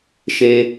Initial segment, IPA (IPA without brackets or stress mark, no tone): ʃ